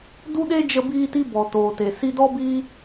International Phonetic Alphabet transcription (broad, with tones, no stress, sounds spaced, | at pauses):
d u˦ ɗ e˦ d͡ʒ ə˧ b iː˧ t i˧ b ɔ˨ t oː˨ t e˨ s i˧ d ɔ˦ b iː˦